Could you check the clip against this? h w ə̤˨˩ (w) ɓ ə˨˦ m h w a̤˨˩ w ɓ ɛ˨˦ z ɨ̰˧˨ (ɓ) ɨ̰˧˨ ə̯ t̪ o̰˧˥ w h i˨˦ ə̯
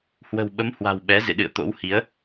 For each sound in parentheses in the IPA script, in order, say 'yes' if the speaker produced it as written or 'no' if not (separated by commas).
yes, no